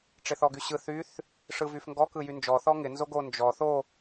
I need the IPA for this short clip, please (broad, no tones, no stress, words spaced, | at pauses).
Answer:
ʈ͡ʂɪθɔɡyɕɯ θyθ | ʂɯvyfŋɡɔ kɯjynd͡ʒɔ θɔŋɪ nzoɡo nd͡ʒɔ θo